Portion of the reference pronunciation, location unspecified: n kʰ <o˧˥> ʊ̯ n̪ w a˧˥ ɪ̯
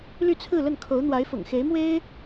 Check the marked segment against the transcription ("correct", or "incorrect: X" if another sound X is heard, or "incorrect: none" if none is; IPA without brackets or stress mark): correct